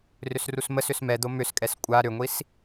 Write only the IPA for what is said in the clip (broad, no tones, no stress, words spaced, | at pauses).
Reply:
rʏsrusməsʏs mɛd̪o mʏskʼɛs kʷʼa ɾʏŋʷis